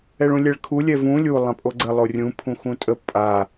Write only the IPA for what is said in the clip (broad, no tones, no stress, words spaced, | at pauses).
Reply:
ɛɭũlʲɛɭkʰu lʲɛvũ lʲu lˠãpʼoɡ͡ǀə lˠorʲũ pʰũxũtʼə pʼa